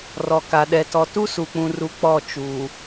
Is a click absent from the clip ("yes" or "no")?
yes